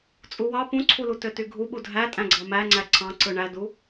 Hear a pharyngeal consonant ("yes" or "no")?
no